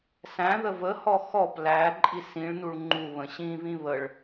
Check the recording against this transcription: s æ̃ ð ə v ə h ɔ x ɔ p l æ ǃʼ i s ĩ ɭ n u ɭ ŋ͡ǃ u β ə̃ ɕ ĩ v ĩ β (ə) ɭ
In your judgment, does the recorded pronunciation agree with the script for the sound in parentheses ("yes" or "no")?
yes